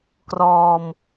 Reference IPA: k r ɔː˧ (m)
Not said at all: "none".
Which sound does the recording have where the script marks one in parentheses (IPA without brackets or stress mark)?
m